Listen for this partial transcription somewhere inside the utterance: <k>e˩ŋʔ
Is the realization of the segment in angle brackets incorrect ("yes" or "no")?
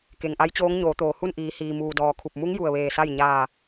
no